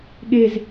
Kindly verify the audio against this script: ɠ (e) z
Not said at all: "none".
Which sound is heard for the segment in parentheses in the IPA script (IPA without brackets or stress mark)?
e